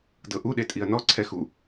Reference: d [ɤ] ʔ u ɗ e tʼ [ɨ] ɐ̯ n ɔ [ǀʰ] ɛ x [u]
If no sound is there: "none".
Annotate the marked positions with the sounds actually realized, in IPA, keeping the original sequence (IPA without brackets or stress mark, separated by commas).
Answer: ɤ, i, ǀʰ, u